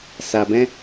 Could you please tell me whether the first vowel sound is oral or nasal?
oral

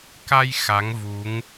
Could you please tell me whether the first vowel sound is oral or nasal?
oral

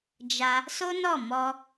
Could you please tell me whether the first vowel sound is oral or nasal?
oral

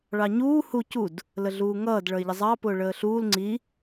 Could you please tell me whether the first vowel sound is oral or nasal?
oral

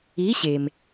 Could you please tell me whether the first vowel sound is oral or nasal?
oral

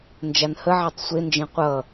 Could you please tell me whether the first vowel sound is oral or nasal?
oral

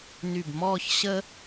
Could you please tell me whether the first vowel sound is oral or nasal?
oral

